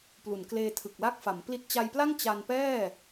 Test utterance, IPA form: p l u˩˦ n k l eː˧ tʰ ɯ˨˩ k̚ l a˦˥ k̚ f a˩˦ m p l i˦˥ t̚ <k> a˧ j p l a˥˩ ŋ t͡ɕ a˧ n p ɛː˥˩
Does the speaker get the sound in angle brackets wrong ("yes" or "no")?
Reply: yes